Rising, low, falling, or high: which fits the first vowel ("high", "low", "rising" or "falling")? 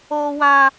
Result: high